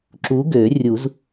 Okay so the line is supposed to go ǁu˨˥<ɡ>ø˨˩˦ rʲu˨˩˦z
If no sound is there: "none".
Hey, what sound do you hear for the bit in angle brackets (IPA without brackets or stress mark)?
ɡ